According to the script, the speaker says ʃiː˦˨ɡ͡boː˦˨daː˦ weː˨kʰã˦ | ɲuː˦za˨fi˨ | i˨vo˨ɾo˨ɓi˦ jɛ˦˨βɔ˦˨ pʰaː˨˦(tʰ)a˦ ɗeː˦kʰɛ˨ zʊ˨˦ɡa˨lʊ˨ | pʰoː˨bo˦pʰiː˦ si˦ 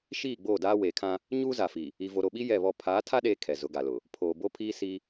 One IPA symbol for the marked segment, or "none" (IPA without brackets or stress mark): tʰ